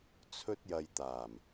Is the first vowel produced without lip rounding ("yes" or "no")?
no